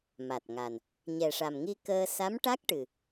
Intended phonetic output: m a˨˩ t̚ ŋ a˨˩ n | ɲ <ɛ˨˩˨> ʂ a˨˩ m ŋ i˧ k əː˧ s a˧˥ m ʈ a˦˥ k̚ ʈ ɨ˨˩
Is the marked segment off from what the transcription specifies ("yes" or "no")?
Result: yes